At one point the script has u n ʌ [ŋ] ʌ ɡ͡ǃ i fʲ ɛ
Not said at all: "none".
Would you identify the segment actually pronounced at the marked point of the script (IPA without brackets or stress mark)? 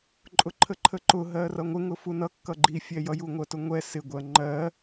kː